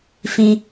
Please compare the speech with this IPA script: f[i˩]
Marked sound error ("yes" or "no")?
yes